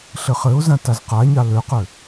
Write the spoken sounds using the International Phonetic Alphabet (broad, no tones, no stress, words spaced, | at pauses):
ɬɘχɘʊ̯zã tazqaɲɑ løqø